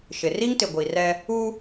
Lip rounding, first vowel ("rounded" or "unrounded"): unrounded